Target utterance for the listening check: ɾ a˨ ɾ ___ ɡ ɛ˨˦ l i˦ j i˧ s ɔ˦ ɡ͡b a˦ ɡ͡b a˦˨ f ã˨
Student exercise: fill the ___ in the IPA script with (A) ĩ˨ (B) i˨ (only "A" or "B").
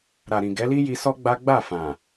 A